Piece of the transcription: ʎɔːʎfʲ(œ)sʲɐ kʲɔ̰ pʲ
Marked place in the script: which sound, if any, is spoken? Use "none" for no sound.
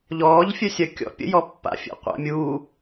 œ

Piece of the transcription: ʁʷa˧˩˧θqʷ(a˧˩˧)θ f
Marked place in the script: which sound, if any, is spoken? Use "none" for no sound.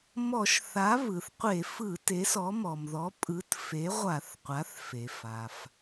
a˩˥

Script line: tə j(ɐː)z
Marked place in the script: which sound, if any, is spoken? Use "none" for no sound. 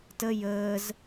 əː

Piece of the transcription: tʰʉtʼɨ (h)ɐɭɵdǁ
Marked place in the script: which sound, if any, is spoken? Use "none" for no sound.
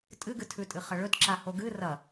χ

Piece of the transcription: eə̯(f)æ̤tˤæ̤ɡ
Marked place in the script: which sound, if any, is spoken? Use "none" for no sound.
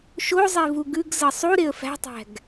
f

